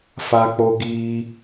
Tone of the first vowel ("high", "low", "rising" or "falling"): high